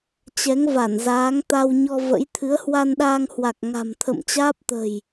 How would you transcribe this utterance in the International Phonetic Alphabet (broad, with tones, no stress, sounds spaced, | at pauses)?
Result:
t͡ɕ ɛ˨˦ ŋ v a˧˩ n z aː˨˦ ŋ t̪ a˧ w ɲ ɔ˧ v ə̰˧˥ j t̪ʰ ɨ˨˦ ə̯ h w a˧ n ɗ aː˧ ŋ h w a˨˩ k̚ ŋ a̤˨˩ m t̪ʰ ə̰˧˨ m t͡ɕ aː˦˥ p̚ t̪ ə̤˨˩ j